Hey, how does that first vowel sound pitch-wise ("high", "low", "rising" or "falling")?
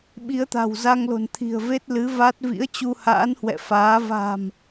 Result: rising